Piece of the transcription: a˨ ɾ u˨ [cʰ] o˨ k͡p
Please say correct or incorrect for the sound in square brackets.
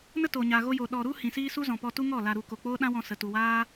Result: incorrect